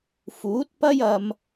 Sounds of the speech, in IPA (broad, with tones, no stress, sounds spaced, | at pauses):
f uː˨˥ t̚ p ɐ˥ j ɐ˧ m